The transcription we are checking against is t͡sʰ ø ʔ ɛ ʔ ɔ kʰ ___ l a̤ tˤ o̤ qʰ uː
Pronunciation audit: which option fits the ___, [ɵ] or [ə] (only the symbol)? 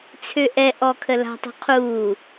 ə